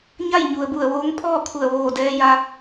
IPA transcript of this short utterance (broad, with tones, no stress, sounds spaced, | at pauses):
ɲ a˥˨ j ɲ u˩ ə̯ b u˧˩ ə̯ ʋ oː˧˥ ŋ pʰ ɔː˥˨ kʰ u˧˩ ə̯ ʋ oː˧˩ d ɛː˧ j a˧